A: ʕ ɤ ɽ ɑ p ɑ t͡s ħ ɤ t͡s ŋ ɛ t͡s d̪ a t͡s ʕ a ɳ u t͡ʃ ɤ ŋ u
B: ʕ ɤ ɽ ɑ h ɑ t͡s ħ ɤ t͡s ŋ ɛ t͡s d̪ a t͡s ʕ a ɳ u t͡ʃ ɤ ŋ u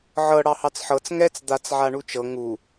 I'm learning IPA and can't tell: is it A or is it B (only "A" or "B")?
B